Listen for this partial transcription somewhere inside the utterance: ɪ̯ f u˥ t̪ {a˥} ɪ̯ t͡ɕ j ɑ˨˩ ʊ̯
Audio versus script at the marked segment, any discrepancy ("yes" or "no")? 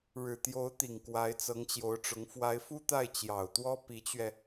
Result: yes